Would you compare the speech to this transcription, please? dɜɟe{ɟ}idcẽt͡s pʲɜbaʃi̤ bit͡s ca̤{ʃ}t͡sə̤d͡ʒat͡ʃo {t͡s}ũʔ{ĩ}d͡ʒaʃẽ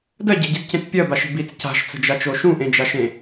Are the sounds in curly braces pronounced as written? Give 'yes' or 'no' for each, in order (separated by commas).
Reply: yes, yes, no, no